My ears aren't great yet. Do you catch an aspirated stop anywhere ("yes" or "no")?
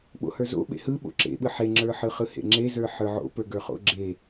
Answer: no